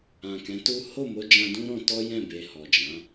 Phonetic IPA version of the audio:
ã˨kɛ̃˨˦tu˦ ho˦˨mo˧d͡ʒã˧ dũ˦ɾɔ̃˧tɔ˦jɛ̃˦˨ be˧hɔ˨d͡ʒã˨˦

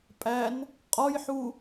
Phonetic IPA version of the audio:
pʼæn | qʼɔjħu

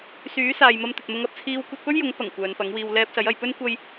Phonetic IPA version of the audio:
syː˨˥saː˨j mɐ˧mt̪ɵ˨t̚mʊ˧ŋ ɐ˨˥p̚t͡sʰiː˧w kʷɐ˧t̚pɵ˥ɥjʊ˨˥ŋpɐ˨˩ŋ kʷœː˨˧npɐ˨˥ŋwiː˧w lɛː˧p̚sɐ˨˥j ɐ˨jpɵ˥n kʷɐ˥j

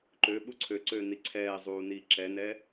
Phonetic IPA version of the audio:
ǃø ɓuǀʰøǀøː niǀʰɛːzˤuː niːǁɛnɛ

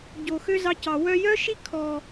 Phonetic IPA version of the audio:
ɟo˨xø˦ zɑ˧cɑ˨ wœ˧ jœ˦ʃi˦kʰɔ˨

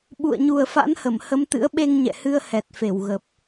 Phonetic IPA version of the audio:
ɓṵ˧˨ə̯ɲu˨˩ə̯fa̰˧˥nhə˧˩m hə˨˦mt̪ɨ̰˧˥ə̯ɓe˧ŋ ɲɛ̰˧˨hɨ˧ə̯ hɛ˨˩t̚fe˧˩wɣə˨˩p̚

